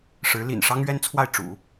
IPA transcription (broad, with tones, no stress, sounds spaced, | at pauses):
ʂ ɻ̩˧˥ l ḭ˨˩ n ʂ ɑ˥ ŋ ɥ ɛ˥ n t͡sʰ w a˥˩ ɪ̯ ʈ͡ʂ ṵ˨˩˦